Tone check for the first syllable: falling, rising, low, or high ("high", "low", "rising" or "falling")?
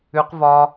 high